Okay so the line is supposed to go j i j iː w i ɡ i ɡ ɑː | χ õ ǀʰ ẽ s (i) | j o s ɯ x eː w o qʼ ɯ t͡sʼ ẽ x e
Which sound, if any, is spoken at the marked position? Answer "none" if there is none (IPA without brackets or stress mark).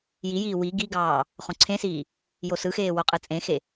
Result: iː